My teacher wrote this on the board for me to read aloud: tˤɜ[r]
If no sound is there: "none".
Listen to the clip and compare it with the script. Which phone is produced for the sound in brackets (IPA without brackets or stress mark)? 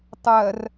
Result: r